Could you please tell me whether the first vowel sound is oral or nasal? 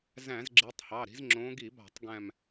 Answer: nasal